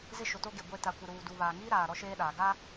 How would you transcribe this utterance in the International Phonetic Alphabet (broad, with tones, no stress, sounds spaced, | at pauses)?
z ɪ˦ ʃ ʊ˨ t o˦ ɡ e˨ ɡʷ e˦ t a˨ kʷ ɪ˨ ɾ uː˨ d u˨ β aː˨ ŋ iː˦ ɾ aː˨ ɾ ɔ˦ ʃ eː˦ ɗ aː˨ ɡ a˦